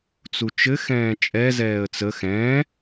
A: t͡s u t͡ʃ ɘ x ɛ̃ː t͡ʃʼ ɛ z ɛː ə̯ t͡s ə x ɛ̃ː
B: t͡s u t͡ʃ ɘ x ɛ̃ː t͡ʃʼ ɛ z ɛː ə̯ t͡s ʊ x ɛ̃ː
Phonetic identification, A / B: A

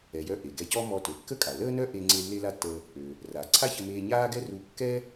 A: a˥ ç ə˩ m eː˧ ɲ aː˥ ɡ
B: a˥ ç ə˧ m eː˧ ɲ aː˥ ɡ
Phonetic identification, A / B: B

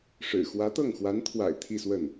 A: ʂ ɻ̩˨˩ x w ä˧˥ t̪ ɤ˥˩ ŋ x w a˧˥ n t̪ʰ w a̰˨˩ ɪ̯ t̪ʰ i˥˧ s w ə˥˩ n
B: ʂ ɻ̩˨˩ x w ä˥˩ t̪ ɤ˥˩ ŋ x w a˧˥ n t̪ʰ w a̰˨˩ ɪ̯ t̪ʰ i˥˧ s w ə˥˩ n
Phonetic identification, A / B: A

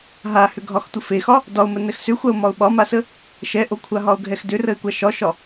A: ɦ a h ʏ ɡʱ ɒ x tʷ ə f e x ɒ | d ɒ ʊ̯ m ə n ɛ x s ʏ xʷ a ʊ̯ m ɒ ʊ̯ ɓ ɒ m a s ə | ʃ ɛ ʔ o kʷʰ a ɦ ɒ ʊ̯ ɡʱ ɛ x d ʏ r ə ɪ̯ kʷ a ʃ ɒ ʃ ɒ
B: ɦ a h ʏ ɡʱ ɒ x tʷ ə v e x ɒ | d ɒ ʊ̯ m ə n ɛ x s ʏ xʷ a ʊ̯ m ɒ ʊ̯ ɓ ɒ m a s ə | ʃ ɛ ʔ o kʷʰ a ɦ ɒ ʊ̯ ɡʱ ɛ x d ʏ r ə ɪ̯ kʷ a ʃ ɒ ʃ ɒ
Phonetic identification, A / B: A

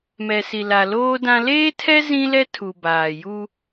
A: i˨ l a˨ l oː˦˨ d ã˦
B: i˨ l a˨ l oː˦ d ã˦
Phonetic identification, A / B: B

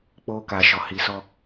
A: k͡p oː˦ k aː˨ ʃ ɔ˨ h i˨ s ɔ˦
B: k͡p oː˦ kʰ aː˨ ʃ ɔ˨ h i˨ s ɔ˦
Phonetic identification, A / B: A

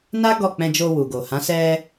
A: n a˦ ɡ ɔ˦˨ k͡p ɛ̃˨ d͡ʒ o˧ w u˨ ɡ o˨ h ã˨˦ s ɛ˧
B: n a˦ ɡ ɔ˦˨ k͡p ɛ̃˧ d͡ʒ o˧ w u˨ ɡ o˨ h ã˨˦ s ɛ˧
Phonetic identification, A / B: B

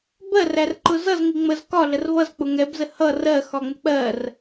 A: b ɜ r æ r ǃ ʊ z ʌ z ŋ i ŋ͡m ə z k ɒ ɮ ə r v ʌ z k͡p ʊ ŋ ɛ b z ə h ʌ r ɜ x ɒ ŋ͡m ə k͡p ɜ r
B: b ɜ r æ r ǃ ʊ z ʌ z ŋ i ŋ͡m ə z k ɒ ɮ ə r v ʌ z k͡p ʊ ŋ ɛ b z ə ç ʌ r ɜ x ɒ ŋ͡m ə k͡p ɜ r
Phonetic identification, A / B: A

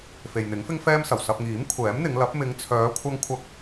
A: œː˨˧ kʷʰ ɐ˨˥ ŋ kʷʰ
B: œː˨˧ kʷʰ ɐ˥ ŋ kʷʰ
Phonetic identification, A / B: B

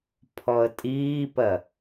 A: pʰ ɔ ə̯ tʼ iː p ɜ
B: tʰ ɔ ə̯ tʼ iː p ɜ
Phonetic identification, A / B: A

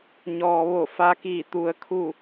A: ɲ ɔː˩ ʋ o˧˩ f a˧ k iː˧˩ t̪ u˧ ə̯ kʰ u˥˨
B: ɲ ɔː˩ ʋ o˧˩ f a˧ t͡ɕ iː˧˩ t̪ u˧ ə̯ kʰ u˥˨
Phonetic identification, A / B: A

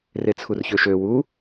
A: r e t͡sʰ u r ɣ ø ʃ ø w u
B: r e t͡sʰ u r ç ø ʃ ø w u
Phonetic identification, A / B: B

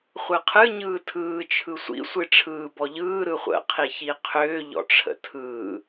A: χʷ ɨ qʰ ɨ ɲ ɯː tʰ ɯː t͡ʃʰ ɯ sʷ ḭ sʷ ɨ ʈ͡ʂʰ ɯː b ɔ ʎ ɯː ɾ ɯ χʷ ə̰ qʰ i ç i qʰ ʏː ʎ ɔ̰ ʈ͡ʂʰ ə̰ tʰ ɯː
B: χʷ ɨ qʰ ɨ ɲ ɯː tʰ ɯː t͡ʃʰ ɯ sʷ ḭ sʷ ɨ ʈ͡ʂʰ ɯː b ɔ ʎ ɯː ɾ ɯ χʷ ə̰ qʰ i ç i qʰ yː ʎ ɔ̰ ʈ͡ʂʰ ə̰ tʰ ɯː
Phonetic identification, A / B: A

